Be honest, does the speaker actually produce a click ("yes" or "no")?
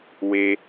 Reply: no